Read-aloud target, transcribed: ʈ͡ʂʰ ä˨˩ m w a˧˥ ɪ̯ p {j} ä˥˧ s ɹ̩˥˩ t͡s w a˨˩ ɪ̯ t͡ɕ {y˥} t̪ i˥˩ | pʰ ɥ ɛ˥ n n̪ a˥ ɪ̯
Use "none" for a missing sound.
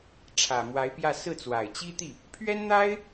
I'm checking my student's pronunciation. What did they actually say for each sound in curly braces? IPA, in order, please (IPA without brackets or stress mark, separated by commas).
j, i˥